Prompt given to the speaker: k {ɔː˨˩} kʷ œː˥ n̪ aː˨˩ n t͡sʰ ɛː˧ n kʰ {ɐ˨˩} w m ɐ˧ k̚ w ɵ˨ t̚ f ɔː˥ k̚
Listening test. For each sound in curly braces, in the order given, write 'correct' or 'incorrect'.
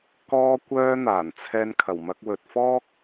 incorrect: ɔː˥, correct

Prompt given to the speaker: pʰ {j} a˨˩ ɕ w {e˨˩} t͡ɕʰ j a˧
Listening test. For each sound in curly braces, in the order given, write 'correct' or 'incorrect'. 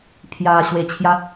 correct, correct

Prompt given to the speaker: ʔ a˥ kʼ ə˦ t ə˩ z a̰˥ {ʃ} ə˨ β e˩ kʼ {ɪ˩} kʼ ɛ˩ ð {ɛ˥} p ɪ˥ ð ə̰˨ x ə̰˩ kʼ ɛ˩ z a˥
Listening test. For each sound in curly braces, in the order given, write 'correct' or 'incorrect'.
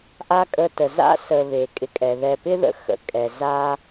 incorrect: s, incorrect: ɪ˨, incorrect: ɛ˨

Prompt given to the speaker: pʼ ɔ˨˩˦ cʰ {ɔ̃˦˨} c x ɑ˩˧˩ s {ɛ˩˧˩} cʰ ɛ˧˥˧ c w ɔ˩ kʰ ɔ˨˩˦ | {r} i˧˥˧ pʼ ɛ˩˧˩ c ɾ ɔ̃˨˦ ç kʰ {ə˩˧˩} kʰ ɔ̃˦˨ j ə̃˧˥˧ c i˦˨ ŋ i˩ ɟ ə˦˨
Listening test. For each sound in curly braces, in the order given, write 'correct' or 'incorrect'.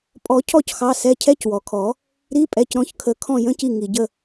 incorrect: ɔ˦˨, correct, incorrect: ɾ, incorrect: ə˨˦

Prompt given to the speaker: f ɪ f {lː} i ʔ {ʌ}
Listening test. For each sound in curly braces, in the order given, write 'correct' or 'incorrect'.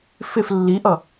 correct, correct

